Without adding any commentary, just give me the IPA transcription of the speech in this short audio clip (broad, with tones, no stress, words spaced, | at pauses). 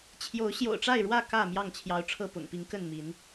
t͡ɕʰjo˨˦ʊ̯ ɕjo̰˨˩ʊ̯ʈ͡ʂa˥˨ɪ̯ɻwä˥˨ kä˥˨ mjɑ˥˨ŋt͡ɕʰjɑ˨˦ʊ̯ ʈ͡ʂʰɤ˥˨pʊ̰˨˩ŋpi˨˦ŋ kə˥˨nmi˨˦n